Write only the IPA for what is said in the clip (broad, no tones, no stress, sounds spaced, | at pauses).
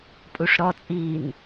pʼ u ʂ ɾ ɔ t͡sʼ iː n